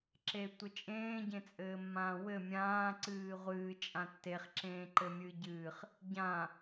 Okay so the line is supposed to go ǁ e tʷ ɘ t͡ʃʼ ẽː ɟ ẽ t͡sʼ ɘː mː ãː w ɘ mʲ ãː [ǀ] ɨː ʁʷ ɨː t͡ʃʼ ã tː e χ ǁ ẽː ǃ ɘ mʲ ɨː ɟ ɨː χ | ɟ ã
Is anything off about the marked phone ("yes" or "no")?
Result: no